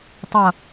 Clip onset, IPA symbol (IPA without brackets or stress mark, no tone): tˤ